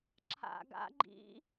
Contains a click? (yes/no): yes